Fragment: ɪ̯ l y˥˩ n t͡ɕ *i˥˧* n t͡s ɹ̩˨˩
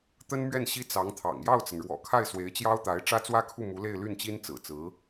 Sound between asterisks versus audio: incorrect: i˥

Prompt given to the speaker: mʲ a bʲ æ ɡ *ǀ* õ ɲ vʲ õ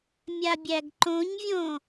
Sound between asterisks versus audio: incorrect: ǃ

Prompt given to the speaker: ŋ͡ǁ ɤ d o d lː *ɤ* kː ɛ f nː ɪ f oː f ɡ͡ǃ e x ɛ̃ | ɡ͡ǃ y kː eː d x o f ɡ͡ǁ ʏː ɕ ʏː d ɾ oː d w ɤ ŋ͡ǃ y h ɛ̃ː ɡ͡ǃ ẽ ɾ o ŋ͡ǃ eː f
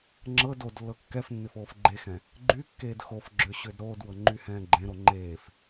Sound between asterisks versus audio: correct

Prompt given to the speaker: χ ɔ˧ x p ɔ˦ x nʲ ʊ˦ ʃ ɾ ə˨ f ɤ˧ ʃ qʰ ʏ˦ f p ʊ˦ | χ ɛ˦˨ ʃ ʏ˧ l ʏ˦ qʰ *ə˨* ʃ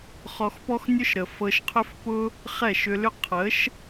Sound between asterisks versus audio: incorrect: ə˨˦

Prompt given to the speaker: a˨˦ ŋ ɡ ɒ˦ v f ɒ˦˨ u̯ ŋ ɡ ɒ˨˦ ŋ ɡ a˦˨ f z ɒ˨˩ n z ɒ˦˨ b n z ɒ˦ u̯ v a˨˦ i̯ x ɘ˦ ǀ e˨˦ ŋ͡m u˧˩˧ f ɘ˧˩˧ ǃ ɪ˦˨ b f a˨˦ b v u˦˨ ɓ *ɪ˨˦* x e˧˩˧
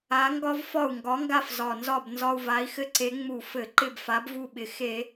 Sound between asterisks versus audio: incorrect: ɪ˨˩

